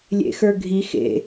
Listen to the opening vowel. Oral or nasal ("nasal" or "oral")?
oral